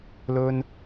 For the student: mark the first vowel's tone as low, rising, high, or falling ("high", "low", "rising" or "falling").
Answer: high